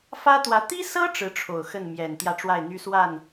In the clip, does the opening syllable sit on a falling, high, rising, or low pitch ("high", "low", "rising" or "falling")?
high